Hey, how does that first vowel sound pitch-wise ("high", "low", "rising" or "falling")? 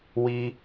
high